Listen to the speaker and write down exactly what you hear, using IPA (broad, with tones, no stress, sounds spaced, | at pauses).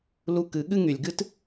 l u˧ k ɨ˨˦ ɠ ɨ˦ ŋ y˨ lʲ ɡ ɨ˦ t